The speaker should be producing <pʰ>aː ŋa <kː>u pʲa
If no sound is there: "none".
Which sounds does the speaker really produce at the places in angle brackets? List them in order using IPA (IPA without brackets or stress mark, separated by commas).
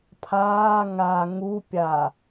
pʰ, ŋ